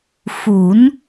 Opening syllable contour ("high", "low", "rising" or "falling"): rising